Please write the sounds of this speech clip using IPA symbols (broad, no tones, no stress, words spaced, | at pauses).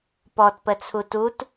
pɔtpət͡sʰu tut